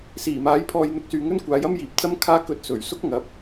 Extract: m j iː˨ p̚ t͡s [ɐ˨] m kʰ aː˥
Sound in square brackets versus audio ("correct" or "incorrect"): incorrect